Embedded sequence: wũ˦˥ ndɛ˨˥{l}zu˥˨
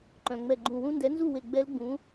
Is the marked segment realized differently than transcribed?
yes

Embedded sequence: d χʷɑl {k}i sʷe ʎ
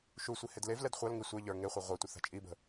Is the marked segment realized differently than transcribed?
yes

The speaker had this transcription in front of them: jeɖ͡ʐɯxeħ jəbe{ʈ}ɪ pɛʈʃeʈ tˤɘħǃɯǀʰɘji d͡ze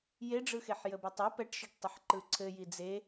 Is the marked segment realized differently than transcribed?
yes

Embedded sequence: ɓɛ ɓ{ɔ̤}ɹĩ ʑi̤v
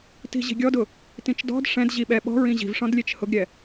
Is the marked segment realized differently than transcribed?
no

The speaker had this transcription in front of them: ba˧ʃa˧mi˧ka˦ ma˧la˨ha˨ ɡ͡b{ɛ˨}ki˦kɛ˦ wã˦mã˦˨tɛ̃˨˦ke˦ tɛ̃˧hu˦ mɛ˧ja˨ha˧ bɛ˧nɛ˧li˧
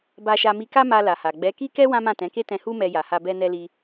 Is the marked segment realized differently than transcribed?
yes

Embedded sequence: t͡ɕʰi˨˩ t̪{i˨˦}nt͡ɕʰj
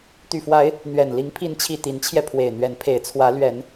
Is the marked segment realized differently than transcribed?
no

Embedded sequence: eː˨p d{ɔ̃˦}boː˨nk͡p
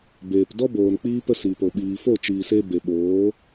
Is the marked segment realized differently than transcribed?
yes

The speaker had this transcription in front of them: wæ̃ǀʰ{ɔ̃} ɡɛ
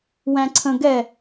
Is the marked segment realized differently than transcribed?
yes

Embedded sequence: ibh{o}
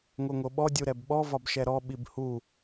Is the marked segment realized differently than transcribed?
yes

